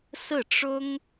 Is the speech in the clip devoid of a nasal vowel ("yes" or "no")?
yes